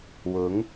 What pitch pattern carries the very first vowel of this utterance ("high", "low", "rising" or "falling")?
rising